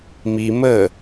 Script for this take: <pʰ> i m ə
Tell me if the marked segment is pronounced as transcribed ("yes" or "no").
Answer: no